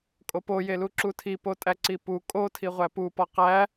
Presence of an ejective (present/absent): present